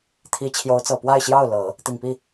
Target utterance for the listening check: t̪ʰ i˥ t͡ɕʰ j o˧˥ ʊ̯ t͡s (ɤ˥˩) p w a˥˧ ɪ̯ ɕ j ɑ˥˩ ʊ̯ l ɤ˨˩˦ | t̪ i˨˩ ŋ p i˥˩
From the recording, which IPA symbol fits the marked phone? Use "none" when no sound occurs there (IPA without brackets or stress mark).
ɤ˨˩